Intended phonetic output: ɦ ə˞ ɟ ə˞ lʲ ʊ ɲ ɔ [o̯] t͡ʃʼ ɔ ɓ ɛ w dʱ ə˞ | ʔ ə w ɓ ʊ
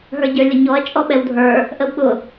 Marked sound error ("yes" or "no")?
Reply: yes